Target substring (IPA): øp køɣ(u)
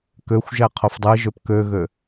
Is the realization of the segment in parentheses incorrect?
yes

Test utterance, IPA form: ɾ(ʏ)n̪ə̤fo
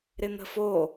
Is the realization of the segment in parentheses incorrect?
yes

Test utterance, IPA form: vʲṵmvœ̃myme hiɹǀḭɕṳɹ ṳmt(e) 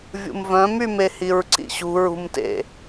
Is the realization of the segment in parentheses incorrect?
yes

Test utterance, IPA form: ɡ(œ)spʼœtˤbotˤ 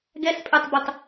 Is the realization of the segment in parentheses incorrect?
yes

